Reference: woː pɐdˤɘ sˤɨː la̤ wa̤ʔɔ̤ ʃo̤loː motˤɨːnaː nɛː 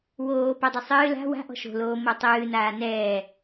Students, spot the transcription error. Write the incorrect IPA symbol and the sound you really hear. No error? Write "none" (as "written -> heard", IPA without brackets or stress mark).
none